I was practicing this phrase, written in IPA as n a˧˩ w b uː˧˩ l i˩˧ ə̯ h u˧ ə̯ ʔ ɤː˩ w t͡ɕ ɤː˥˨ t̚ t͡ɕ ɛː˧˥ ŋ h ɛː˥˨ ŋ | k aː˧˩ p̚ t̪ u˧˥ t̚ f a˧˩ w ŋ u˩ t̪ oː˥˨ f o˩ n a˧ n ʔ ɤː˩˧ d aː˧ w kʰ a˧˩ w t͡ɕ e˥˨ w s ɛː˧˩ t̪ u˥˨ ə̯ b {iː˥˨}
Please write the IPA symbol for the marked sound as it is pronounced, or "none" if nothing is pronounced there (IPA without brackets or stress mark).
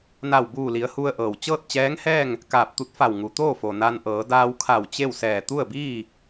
iː˥˨